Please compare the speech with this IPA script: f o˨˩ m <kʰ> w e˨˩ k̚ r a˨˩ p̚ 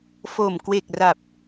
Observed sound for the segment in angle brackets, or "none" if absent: k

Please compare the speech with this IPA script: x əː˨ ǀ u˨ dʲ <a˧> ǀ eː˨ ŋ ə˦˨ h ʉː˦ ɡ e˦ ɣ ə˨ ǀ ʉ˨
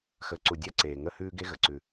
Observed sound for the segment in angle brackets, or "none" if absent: a˧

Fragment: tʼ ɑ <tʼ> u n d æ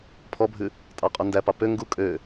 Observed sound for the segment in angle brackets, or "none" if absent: qʼ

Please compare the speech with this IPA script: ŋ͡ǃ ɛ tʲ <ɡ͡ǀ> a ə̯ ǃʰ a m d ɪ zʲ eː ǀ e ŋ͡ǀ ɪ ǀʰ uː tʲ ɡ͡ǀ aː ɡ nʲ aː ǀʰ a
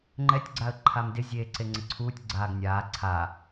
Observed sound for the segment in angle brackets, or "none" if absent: ɡ͡ǀ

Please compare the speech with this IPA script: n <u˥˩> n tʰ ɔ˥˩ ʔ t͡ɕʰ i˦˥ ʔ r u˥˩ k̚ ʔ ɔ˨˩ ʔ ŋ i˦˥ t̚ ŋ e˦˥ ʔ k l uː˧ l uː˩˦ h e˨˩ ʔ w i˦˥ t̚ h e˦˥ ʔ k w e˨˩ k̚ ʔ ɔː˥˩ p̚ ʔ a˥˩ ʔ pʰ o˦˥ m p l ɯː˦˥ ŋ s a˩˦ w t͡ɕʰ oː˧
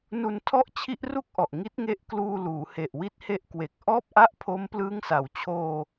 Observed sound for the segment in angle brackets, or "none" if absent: u˧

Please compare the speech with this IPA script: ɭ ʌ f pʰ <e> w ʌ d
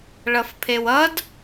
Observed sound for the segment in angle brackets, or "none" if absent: e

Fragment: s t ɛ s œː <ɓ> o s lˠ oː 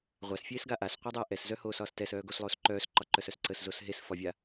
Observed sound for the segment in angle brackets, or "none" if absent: ɡ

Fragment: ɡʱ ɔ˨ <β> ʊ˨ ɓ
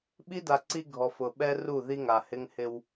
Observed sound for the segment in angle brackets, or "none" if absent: f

